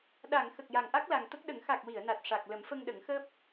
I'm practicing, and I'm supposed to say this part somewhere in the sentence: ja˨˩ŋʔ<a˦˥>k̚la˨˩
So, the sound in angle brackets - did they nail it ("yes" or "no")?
yes